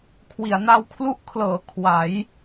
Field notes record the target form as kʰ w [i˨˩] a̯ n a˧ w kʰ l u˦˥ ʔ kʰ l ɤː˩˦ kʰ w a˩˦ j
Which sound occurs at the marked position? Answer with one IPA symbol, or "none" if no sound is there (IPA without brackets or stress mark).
i˩˦